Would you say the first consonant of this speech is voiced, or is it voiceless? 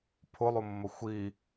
voiceless